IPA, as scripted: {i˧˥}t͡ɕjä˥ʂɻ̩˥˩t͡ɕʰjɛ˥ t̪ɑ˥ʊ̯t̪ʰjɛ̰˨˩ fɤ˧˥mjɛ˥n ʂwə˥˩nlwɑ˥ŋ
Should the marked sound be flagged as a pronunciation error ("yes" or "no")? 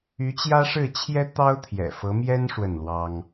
yes